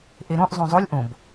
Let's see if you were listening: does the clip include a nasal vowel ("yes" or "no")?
yes